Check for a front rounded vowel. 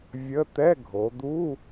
absent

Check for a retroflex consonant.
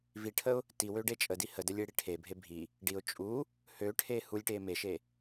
present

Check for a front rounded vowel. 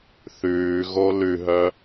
present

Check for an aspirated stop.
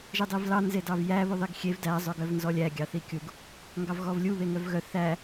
absent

